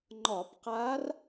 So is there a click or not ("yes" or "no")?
yes